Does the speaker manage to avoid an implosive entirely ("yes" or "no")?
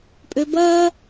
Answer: yes